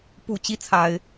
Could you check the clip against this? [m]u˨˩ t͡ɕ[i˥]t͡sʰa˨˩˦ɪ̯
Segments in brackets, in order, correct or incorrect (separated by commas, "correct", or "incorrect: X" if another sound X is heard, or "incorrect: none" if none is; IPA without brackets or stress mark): incorrect: p, correct